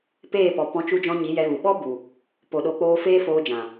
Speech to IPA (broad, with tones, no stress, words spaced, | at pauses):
peː˦˨pɔ˨ pɔ̃˨˦t͡ʃu˧d͡ʒɔ̃˧ ɲi˨˦jɛ˧ɣu˨ ɓɔ˦ bu˨ | po˨ɗo˨˦k͡poː˧ feː˦foː˧d͡ʒã˨